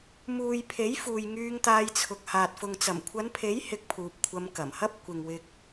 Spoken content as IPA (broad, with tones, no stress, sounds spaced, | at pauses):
m uː˨ j pʰ e˨˥ j f uː˨ j ŋ yː˧ ŋ t̪ aː˧ j t͡sʰ ʊ˨˥ k̚ h aː˨ t̚ f ʊ˨ ŋ t͡s ɐ˨˩ m kʷʰ ɐ˨˧ n pʰ e˨˥ j h ɪ˧ k̚ pʰ uː˨ p̚ kʷʰ ɐ˧ m k ɐ˨˩ m h ɐ˥ p̚ kʷ ɪ˨ ŋ w ɪ˧ k̚